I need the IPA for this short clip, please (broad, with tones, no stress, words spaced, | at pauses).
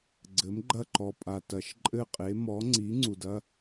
ɡ͡ǀɘ˩˥mɡ͡ǃɐ˥˨ǃɔ˨ pʼa˨tɐ˨ʃ ǃʼɘ˥˨qʼe˩˥ mɔ˩˥ ŋ͡ǀi˩˥ ŋ͡ǀu˨dɐ˧˥˧